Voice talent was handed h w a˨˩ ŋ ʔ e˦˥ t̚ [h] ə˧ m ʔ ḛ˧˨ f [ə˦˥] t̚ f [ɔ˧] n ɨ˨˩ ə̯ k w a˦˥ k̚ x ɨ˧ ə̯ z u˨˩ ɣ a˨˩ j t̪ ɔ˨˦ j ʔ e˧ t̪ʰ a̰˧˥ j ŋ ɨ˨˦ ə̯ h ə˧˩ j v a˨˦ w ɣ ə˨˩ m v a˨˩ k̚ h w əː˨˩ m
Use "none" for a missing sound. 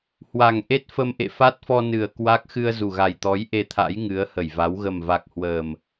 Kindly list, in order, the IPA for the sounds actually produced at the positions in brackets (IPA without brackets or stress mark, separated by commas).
f, a˦˥, ɔ˧